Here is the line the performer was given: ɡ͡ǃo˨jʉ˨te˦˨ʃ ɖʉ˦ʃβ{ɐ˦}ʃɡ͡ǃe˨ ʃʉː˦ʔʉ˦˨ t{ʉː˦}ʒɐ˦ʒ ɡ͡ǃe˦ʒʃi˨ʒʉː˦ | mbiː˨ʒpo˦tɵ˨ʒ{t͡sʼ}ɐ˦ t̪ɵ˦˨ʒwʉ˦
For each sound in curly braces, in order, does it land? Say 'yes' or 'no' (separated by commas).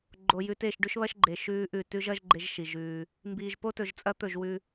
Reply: yes, no, yes